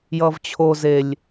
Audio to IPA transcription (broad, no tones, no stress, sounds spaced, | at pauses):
j ʌ v t͡ɕʰ o z e lʲ